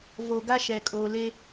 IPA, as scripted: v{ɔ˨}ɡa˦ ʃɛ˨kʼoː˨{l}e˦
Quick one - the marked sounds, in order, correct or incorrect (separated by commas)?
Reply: incorrect, correct